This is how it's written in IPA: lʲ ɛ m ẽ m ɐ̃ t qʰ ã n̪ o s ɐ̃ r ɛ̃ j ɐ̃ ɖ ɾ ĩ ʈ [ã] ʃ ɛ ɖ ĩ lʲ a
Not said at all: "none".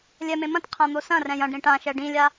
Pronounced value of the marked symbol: ã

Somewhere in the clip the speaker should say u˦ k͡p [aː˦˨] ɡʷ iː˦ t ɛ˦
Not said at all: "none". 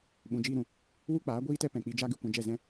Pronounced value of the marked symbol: aː˨˦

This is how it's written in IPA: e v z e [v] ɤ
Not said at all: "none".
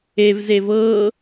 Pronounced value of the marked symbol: v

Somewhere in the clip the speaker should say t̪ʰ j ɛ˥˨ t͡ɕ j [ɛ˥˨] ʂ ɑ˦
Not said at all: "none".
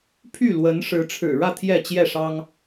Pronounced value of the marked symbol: ɛ˥˨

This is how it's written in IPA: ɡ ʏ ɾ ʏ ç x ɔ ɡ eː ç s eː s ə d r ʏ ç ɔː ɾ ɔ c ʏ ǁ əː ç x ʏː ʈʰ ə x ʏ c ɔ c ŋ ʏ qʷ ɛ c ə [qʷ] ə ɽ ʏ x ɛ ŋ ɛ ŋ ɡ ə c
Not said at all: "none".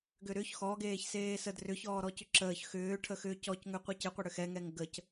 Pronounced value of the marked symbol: qʷ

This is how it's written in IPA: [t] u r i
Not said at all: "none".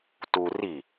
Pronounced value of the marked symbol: t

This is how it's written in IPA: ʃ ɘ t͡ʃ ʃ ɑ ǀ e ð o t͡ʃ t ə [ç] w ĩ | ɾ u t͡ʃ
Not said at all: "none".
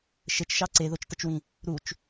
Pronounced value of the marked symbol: t͡ʃ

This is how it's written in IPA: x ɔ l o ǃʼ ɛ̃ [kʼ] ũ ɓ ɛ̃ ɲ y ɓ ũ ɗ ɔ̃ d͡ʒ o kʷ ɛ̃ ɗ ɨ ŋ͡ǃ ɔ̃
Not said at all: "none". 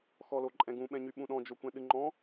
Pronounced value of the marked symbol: ɡ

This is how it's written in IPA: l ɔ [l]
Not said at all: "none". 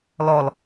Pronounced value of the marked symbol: l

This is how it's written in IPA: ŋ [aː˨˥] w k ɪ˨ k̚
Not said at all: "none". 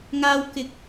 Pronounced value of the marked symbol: aː˧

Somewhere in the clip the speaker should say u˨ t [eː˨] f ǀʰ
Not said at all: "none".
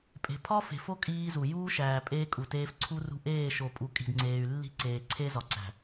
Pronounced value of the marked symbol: eː˦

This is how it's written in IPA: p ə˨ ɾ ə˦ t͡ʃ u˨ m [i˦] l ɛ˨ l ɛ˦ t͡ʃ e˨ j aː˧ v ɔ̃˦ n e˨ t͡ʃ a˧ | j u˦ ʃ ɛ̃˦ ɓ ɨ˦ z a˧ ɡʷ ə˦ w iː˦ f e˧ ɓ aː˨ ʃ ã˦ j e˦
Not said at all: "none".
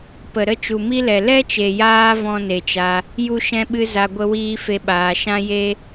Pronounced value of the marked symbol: i˦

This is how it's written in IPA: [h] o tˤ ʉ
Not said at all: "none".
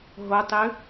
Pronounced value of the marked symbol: ɦ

